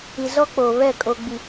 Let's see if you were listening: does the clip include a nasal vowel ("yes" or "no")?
no